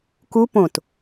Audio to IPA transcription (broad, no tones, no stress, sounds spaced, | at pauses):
k u p õ t